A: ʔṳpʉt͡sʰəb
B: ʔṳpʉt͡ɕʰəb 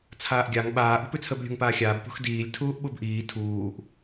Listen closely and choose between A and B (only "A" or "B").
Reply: A